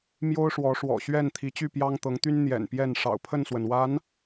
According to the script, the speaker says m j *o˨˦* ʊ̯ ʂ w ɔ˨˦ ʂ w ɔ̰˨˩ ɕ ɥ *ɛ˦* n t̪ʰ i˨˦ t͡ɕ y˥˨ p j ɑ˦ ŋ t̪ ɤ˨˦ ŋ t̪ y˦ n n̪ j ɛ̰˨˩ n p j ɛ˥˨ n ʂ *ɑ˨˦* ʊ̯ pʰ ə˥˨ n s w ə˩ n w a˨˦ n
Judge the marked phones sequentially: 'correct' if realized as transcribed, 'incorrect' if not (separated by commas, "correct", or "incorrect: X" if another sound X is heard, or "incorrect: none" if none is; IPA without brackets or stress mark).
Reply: incorrect: o˦, incorrect: ɛ˥˨, incorrect: ɑ̰˨˩